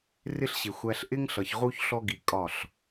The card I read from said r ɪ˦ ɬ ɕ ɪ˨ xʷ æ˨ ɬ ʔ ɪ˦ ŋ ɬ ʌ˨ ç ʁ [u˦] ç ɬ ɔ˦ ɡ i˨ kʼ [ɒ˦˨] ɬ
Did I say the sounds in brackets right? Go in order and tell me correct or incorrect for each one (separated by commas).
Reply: correct, correct